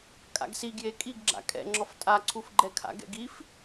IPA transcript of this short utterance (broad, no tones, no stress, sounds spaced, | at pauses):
kʼ a̰ ɡ s i ɡ j e kʼ i ɡ ɡ͡ǁ a̰ kʼ ɛ̰ ŋ͡ǁ ɔ f tʼ a ǀʰ u f ɡ͡ǃ ɛ kʰ a̰ ɡ ɛ̰ ɡ i f